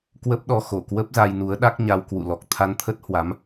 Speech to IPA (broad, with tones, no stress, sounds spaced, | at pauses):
k w ə˦˥ p̚ ɗ ɔ˧ x o˧˩ k w ə˦˥ p̚ z a˧ j n u˨˦ ə̯ ɗ a˦˥ k̚ ɲ a˧ w k w ṵ˧˨ l ɔ˨˩ k̚ t̪ʰ a˧ n t̪ʰ ə˦˥ t̚ h w a˨˦ m